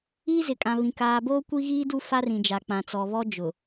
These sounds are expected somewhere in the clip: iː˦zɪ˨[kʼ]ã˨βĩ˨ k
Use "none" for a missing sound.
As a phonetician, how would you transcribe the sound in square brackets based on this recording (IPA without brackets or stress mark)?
kʼ